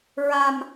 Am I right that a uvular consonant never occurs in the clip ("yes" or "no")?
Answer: yes